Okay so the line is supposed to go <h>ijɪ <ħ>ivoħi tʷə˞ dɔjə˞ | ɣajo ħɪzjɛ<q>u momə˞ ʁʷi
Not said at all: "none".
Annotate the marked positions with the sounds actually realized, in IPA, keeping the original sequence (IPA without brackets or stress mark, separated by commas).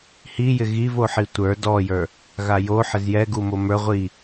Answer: h, ɣ, ɡ